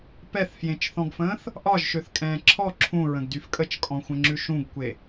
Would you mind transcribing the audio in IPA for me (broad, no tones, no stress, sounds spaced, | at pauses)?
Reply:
p ɛ θ f j ẽ t͡ʃ θ ɔ̃ ɡ f ə̃ː θ | ʔ ɒ ʒ ʃ ø θ kʼ ɛ̃ː ǁʰ ɔ ǁʰ ũ ɹ ə̃ ɡ d y f kʼ ə t͡ʃ kʼ ɔ̃ xʷ ə̃ ŋ͡ǁ ʉ ʃ ũ ɡ kʷ e